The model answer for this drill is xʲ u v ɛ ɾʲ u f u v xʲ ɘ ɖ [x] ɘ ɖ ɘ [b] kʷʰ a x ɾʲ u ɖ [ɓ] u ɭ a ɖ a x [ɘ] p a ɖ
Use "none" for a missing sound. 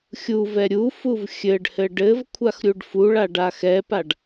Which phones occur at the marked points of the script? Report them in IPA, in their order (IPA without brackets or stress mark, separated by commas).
h, v, f, ɛ